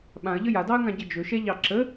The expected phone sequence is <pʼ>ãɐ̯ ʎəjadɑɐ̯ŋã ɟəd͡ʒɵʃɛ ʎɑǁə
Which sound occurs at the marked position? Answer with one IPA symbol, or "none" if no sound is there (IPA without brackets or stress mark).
ɓ